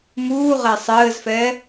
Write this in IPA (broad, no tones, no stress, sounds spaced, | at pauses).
m uː ʁ ɛ sˤ ɘː z f ɛ